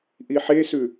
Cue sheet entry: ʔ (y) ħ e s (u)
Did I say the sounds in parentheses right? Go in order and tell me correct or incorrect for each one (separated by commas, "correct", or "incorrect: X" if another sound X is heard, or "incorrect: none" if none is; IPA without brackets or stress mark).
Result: incorrect: i, incorrect: ʉ